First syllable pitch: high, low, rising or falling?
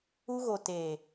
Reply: high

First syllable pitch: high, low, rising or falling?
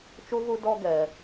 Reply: high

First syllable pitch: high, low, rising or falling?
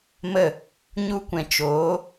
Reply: falling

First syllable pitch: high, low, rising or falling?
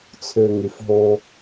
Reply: low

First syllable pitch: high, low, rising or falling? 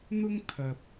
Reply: high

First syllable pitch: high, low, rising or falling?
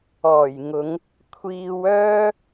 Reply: low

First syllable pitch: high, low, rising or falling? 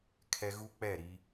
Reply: high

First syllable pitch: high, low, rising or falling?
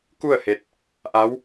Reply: falling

